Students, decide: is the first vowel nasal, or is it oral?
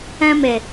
nasal